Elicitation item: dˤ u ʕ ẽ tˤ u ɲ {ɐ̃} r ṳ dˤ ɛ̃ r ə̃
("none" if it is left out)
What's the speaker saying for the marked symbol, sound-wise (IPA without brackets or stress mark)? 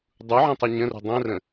ə̃